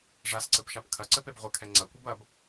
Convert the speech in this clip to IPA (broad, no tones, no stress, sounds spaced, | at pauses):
ʐ a s ǀ ɘ p ʃ a p kʰ ɐ ǀ ɘ p e b ʁʷ ɘ kʰ ɛ ŋ͡ǀ ɐ kʷ ɨ b ɐ b